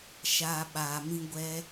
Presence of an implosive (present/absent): present